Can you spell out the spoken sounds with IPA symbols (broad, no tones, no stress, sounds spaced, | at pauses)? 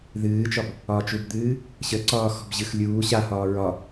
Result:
ð ɨː t͡ʃ ɒ b | ɒ t͡ʃ u b d̪ ɨː | ɕ ə ǀ ɒː x ɔ̤ b ʑ ɨ x lʲ uː ɕ a h ɒː ɹ ɒ